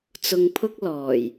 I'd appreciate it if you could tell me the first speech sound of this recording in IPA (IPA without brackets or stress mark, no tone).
t͡s